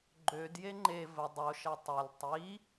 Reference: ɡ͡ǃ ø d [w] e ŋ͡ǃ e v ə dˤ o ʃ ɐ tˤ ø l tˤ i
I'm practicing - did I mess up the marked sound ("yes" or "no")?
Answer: yes